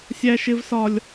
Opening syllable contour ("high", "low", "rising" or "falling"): high